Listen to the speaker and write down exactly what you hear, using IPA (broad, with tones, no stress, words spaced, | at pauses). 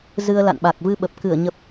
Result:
zɨ˧ə̯ la̰˧˨nɓa˨˩k̚ vɨ˧ɓə˨˩p̚ kɨ˧˩ə̯ɲə˨˩p̚